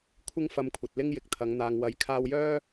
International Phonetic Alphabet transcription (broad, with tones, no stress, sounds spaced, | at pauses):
kʷʰ ɪ˥ ŋ f ɐ˧ m kʷʰ ɐ˨ t̚ l ɪ˥ ŋ j ɪ˨ k̚ t̪ʰ ɐ˨˧ ŋ n̪ aː˨ ŋ w ɐ˨˥ j kʰ aː˧ w j œː˥